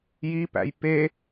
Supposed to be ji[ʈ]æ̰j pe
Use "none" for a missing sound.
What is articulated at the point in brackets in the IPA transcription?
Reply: p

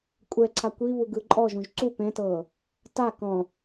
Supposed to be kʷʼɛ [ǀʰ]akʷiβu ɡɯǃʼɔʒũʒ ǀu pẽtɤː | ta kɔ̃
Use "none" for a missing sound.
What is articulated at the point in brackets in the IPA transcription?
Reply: ǀʰ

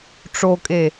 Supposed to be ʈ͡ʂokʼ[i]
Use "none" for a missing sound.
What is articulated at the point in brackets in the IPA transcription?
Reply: e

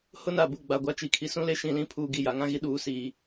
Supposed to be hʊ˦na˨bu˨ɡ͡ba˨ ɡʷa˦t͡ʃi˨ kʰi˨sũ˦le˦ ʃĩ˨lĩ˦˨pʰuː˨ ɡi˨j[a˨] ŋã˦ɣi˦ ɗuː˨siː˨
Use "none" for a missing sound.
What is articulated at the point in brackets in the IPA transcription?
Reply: a˨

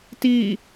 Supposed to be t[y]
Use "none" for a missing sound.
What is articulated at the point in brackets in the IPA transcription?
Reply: i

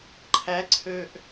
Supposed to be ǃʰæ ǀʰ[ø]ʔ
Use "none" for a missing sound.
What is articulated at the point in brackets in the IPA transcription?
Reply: ø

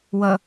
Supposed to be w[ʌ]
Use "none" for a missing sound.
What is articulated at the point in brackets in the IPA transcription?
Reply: ʌ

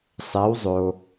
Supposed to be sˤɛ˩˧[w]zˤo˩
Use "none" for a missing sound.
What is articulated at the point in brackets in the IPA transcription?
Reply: w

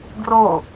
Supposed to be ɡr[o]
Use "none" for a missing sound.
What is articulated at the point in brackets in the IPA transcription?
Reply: o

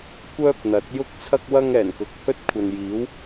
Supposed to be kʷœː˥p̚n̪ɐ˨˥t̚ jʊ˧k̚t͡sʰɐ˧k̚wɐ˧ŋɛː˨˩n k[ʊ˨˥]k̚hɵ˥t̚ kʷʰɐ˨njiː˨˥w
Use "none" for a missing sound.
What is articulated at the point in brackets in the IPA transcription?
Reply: ʊ˨˥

